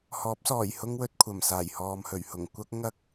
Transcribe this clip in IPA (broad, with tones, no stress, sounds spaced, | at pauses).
h ɔː˨˥ p̚ s ɔː˨˩ j h ʊ˥ ŋ w ɵ˧ t̚ kʷʰ ɐ˨˩ m s aː˨˩ j h ɔː˨ m h ɵ˨˩ ɥ h ʊ˨˩ ŋ kʷ ɐ˧ k̚ ŋ ɐ˧ k̚